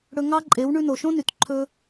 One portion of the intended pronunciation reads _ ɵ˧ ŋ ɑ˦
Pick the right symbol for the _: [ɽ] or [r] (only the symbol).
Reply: ɽ